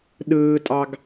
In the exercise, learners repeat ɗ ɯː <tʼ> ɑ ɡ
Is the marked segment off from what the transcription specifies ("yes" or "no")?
no